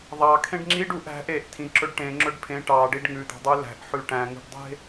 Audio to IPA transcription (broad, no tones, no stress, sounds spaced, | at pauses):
ðˤ ɑ kʰ ẽ ɖ ŋ͡ǁ i ɖ u ʔ æ̤ ʔ e ʔ tʰ ĩ ǁ ɵ ɖ ʈ ẽ ŋ͡ǁ ɵ ɖ pʰ ẽ ʈ ɑ ɖ i ɖ ŋ ʉ d̪ ɑ̤ dˤ ʉ l æ̤ ʔ ħ ʉ ʈ æ̃ ŋ ṳ ɖ dˤ e̤